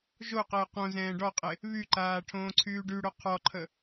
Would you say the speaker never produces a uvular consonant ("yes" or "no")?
no